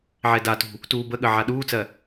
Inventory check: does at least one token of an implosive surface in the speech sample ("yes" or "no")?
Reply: yes